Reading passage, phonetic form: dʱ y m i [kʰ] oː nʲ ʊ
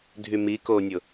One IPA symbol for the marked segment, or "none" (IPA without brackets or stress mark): k